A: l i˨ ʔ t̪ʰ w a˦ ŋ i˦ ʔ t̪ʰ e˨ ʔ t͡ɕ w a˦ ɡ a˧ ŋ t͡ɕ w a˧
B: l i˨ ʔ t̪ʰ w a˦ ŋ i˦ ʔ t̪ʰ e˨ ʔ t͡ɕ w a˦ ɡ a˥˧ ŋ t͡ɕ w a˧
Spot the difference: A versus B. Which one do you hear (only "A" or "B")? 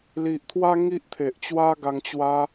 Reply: A